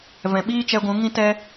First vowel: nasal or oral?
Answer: nasal